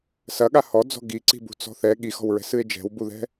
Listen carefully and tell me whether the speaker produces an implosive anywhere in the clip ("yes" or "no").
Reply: yes